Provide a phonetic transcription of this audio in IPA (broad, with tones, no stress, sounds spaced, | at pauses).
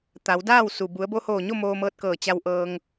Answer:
t̪ a˩˧ w d aː˥˨ w s u˩ b u˩˧ ə̯ b o˧ h oː˧˩ ɲ o˥˨ m oː˧ m ɤː˧ t̚ k ɤː˧˩ t͡ɕ a˧ w ʔ ɤː˧ ŋ